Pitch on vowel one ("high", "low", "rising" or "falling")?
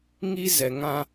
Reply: high